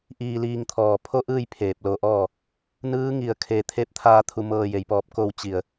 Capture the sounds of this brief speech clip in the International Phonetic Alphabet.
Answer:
ʔ iː˧ l iː˧ ŋ t̪ʰ ɔː˧˩ pʰ o˥˨ ʔ ɯː˥˨ j pʰ eː˧˩ p̚ l o˧ ʔ ɔː˥˨ | n ɯː˧˥ ŋ i˧˩ ə̯ kʰ e˧ t̪ʰ e˧˥ p̚ t̪ʰ aː˧ t̪ʰ u˧ m ɤː˧ j e˩˧ j p ɔː˧˩ p̚ k o˥˨ w t͡ɕ i˧˩ ə̯

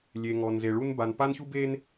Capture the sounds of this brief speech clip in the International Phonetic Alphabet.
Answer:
lʲ e˨ ŋ ɔ˨ n z e˨ ɭ u˦ n b a˨ n p a˦ n ç u˦ b e˦ n

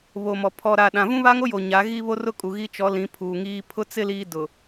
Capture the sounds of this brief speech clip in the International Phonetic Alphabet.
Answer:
β o˨ m ɔ˨ pʰ ɔ˨ ɾ a˨ ɗ ã˨ v ũ˦ β a˦ ŋ o˦ j o˨ ɲ a˨˦ ɣ i˦ β o˦ r ʊ˦ kʼ u˨ ɣ i˦ t͡ʃ ɔ˨˦ l ĩ˨˦ pʰ uː˨ ŋ iː˦ pʰ ʊ˦ t͡s ɪ˦ l iː˦ d ʊ˨

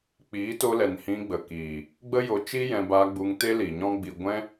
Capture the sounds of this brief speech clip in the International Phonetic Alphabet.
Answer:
k͡p iː˨˦ t o˧ l ɛ˨ n h ĩ˧ ɡ͡b ə˨ k iː˨ | ɡ͡b ə˦ j o˧ t͡ʃ i˦ j ɛ̃˧ b aː˧ ɡ͡b u˧ ŋ t e˦ l i˨ ɲ ɔ̃˦ ɡ͡b i˧ ɡʷ ɛ̃˦

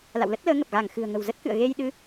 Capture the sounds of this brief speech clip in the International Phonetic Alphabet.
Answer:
l a̰˧˨ w l ə˦˥ t̚ l əː˨˦ ŋ ə˨˩ p̚ ɣ a˧˩ ŋ x ɨ̤˨˩ ə̯ ŋ ə̤˨˩ w z ə˦˥ t̚ k ɨ̰˧˨ ə̯ ɣ e˧ j ɗ ɨ˨˦

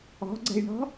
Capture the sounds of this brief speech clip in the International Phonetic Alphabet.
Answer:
ɔ̤ ɡ͡ǀ ɛ̤ j ɳ ɔ̤

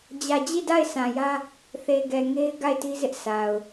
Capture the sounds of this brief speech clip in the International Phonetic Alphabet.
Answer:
d͡ʑ ä˨ d͡ʑ i˦˨ d a˦˨ ɪ̯ sʰ ã˨ j ä˦ | θ e˨ ɡ ɛ˨ ŋ e˦ ɪ̯ ɡ a˦˨ ɪ̯ t i˦ z ɪ˦ ʔ s a˨ ʊ̯

